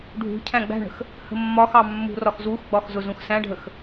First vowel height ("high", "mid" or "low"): high